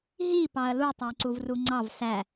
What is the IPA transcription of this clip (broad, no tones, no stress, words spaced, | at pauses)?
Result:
ɦi pɑɐ̯lu tˤæǀuvruŋ͡ǀɑv sæ